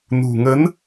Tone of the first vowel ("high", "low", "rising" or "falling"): low